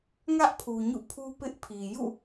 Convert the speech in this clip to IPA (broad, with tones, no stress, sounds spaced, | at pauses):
ŋ ä˦ ʔ pʰ u˨ ɲ ṵ˦˨ pʰ u˦ p ɪ˦ ʔ pʰ i˨ j ṵ˦˨